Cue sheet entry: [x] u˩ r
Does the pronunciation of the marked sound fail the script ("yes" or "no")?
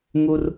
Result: yes